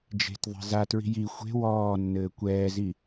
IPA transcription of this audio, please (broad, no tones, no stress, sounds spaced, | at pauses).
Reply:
d͡ʒ e̤ t ðˤ e̤ z a t ɹ i̤ j i xʷ e̤ w ɔː nː ɘː kʷ ɛː z i